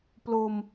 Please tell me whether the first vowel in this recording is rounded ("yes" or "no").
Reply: yes